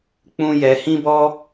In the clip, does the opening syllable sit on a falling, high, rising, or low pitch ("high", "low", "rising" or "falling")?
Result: high